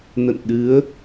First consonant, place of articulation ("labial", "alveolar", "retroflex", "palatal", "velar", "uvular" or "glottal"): alveolar